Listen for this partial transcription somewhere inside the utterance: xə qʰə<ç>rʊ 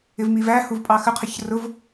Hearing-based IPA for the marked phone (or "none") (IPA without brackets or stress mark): ç